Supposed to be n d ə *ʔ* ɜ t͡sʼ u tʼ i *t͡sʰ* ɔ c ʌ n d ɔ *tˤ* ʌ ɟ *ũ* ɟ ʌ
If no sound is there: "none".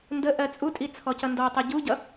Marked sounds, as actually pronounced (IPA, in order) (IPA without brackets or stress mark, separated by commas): ʔ, t͡sʰ, tˤ, u